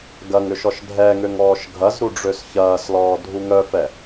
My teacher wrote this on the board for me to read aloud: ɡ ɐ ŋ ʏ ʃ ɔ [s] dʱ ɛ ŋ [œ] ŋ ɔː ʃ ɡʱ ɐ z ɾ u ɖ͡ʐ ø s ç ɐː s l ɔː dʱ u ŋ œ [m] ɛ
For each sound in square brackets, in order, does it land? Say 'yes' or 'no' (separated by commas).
no, no, no